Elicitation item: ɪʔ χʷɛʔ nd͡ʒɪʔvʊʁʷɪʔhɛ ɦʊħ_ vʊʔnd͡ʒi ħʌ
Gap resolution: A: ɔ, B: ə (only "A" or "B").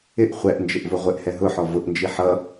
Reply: A